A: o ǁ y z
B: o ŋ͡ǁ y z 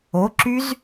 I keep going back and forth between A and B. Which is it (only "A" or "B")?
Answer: A